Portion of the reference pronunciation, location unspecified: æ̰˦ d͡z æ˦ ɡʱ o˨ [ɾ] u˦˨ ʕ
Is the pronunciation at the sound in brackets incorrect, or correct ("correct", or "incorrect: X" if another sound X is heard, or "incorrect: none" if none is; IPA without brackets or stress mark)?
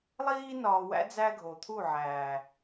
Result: incorrect: t̪ʰ